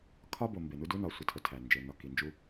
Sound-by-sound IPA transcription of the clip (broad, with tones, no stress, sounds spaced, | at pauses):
kʰ ɒ˦ b o˨ m b e˨ n u˦ d u˦ n ɒ˨ sʷ e˨ tʰ o˨ tʰ æ˨ n d͡ʒ e˨ n ɒ˨ k i˨ n d͡ʒ u˦